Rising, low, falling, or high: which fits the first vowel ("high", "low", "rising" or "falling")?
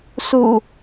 low